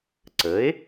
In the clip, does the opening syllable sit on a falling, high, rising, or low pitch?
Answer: rising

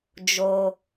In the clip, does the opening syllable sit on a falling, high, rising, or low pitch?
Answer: low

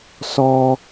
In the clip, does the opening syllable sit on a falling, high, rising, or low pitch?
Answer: high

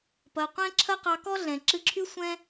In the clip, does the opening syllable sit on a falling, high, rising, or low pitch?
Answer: low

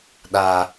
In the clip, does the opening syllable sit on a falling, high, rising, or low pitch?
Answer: low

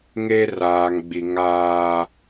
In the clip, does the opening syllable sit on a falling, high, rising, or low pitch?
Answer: high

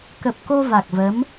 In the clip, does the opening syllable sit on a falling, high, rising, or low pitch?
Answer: low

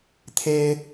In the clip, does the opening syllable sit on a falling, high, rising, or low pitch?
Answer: high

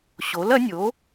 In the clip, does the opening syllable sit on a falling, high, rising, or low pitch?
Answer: rising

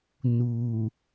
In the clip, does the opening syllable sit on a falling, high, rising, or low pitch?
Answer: low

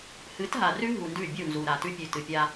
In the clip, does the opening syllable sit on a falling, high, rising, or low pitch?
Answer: rising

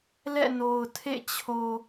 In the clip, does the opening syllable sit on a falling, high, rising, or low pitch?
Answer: falling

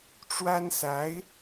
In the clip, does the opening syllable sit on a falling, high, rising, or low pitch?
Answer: high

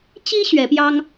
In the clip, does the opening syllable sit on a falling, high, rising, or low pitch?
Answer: high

